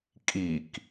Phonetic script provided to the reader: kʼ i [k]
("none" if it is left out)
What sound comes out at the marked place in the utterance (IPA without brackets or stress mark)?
k